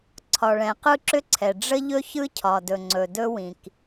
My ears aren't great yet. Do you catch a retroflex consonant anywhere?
yes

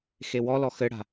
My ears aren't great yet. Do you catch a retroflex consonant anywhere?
yes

